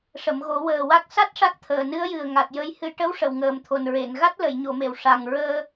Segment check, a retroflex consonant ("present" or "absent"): present